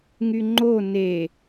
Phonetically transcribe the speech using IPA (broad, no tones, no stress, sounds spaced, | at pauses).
ŋ y ŋ͡ǃ o n e